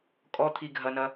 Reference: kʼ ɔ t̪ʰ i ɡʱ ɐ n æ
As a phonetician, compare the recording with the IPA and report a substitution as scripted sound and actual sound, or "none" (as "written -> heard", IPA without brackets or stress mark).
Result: æ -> ɐ